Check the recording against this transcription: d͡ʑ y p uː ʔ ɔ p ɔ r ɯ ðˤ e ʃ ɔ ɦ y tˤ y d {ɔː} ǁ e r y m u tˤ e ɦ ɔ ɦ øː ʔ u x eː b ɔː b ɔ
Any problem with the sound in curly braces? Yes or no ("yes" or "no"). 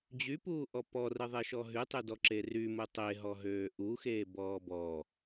yes